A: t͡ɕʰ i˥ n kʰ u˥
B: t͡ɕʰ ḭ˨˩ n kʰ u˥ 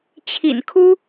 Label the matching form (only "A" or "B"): B